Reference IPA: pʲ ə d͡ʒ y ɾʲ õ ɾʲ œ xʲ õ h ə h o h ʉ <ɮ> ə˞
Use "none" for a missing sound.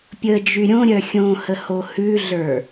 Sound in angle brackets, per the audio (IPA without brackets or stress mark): ɮ